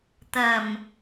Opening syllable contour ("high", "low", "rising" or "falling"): low